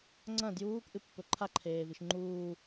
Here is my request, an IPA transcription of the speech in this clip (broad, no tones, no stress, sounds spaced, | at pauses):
ŋ͡ǀ ɐ̃ d j uː k ʔ ɨ pː ɵ ǃʰ a ǃʰ eː v i ʃ ŋ͡ǃ uː